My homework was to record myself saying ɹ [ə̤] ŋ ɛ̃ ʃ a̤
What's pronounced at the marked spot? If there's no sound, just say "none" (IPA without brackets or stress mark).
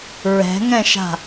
ɛ̤